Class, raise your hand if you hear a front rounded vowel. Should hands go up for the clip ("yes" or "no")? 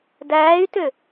yes